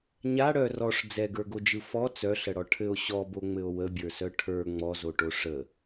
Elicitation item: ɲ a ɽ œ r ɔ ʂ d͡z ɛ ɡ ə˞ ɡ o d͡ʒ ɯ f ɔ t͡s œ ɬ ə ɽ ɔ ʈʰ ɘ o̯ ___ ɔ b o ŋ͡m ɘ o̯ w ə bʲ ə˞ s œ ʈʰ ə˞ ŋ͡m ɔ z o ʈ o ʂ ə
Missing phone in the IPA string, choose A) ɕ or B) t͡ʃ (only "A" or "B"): A